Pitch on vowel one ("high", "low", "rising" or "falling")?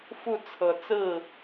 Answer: falling